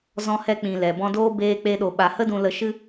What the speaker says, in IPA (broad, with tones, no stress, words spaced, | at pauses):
zɔ̃˧hɛ˧k͡pĩ˨ lɛ˨bɔ̃˦ doː˦ beː˧k͡pe˧ɗo˨ ɓa˨hə˦ dũ˧lə˧ ʃɨ˦